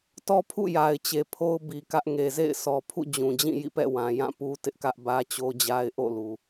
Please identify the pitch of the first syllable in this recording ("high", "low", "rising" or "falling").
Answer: high